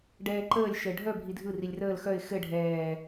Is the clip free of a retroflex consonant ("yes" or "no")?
no